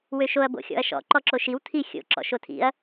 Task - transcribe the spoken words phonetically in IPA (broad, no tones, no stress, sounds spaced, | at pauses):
w ø ʃ o ɐ̯ b o̰ xʲ ɔ̰ ɐ̯ ʃ ɔ̰ ǃ ɔ ǁ o ʃ i w tʰ i xʲ o̰ ǁ ɔ̰ ʃ o tʰ ḭ ɐ̯